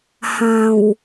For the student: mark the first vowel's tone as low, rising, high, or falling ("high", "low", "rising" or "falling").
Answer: low